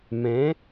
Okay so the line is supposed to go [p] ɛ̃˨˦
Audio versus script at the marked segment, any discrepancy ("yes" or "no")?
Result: yes